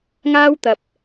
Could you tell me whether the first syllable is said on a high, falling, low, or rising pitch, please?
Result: high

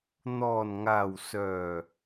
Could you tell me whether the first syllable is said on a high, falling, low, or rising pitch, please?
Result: low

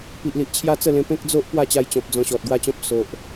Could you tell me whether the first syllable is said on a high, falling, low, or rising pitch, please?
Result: low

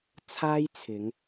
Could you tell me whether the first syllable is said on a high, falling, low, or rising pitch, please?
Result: high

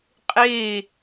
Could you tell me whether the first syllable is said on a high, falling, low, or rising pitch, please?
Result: falling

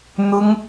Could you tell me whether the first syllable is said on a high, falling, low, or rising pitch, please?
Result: high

